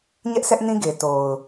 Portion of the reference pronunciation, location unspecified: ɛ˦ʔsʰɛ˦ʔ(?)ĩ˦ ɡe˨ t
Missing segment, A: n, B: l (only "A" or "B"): A